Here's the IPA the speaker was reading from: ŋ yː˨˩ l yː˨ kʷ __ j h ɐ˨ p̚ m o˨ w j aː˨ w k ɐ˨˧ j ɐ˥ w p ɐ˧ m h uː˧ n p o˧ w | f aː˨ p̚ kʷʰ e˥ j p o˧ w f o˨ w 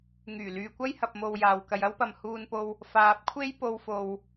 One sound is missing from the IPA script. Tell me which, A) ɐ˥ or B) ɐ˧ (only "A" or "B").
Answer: A